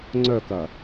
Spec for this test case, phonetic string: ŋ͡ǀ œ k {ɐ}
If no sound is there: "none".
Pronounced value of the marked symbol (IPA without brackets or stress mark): ɐ